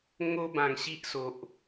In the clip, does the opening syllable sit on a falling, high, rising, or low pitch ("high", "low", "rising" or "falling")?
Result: high